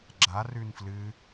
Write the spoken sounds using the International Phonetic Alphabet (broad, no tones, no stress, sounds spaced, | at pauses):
ɡ͡ǁ a r ʉ n f l ɨ